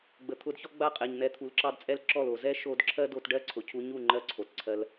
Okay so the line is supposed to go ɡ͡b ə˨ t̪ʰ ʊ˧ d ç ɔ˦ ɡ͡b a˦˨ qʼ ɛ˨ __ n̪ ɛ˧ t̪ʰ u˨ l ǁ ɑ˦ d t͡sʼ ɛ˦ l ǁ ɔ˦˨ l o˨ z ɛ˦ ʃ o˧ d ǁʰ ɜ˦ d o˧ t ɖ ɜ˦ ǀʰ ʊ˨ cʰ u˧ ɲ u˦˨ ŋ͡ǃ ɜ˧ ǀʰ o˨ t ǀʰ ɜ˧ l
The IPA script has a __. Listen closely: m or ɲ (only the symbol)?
ɲ